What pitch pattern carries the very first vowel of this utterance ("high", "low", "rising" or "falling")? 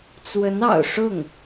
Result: rising